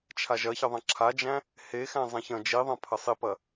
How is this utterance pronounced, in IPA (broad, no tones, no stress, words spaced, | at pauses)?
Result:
t͡ʃʰaʒɐçəðˤɐ̃ ǁʰad͡ʒæ̃ | hexæ̃ zˤɐ̃çɐ̃ d͡ʒiðˤɐ̃ pʰɐsˤipɐ